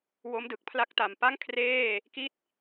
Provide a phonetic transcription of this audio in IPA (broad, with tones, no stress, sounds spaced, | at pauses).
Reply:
w o˦˥ m d ɯ˨˩ k̚ pʰ l a˦˥ k̚ t a˨˩ m p a˥˩ ŋ kʰ r eː˥˩ | k i˥˩ t̚